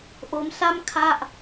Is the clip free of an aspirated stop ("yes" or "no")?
no